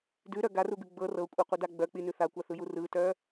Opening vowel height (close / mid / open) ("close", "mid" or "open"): close